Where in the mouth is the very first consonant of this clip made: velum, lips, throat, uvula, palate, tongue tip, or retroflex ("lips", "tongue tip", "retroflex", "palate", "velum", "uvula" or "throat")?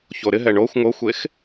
palate